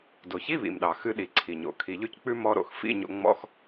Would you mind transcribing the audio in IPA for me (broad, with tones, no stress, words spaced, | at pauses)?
do˩çi˧˥˧βḭ˩mɗɑ˩ xɨ˧ɗi˩ǀʰi˩ɲo̰˩ kʰi˩ʎʉ˧ck͡pʉ˧ mɔ˧ɾo̰˩x fḭ˧˥˧ɲo̰˧ŋ͡mɔ̰˧˥˧x